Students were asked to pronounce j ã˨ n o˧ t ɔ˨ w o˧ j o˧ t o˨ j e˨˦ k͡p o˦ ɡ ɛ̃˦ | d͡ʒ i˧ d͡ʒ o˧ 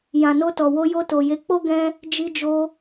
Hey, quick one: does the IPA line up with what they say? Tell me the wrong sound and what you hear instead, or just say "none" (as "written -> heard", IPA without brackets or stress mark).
none